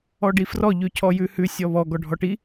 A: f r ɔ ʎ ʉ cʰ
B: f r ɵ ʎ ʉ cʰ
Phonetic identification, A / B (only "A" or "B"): A